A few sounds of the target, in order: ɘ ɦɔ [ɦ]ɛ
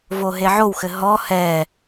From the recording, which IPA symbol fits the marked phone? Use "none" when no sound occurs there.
h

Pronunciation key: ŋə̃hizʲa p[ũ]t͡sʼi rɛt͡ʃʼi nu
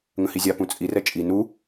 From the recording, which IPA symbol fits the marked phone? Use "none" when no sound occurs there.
ũ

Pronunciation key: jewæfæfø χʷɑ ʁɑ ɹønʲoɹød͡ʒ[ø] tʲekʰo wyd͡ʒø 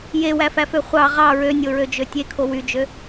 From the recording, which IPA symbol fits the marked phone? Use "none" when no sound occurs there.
ø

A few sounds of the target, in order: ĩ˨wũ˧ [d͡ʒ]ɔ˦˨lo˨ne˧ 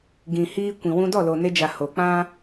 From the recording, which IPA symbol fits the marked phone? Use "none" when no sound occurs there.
d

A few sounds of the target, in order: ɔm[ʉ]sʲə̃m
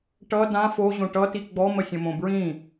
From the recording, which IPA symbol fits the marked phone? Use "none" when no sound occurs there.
ə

